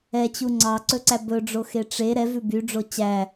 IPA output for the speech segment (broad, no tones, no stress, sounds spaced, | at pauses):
ɛ t͡ɕ u ŋ͡ǀ ɑ ǀ ɵ ǀ æ b ɵ ɖ͡ʐ o x e ʈ͡ʂ e ɾ ɛ v ʉ b y ɖ͡ʐ o t͡ɕ æ